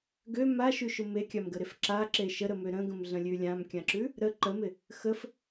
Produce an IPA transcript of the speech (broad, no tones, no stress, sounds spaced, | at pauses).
ɡ ø m a ʃ ʉ ʃ ʊ m e kʲ a m ɡ ə ɾ e f ǁ a ǁ e ʃ ə ɾ ə m ø ɾ ə̃ ɡ ə̃ m ɮ ə̃ lʲ ʉ lʲ ã m kʲ ã ǁ ʉ | ɾ ə ǃ ə m ɪ | x ə f